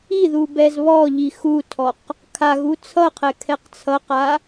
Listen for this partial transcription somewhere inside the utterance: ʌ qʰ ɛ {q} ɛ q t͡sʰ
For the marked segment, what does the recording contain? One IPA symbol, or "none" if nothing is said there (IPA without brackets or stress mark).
kʰ